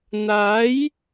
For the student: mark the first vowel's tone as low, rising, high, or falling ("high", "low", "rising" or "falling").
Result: rising